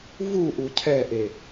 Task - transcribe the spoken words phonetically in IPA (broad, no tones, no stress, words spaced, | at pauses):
vuʔu cʰɛʔe